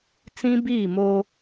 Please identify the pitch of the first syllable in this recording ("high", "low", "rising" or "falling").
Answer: high